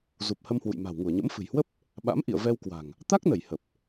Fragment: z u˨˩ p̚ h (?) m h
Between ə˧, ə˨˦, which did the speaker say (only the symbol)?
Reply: ə˧